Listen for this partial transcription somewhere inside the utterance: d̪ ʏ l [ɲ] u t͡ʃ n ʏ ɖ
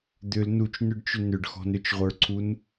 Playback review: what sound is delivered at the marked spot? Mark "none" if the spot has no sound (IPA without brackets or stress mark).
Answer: n